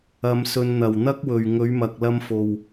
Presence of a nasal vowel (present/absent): absent